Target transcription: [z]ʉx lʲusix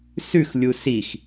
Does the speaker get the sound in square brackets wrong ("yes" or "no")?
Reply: yes